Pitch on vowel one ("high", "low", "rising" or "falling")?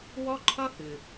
high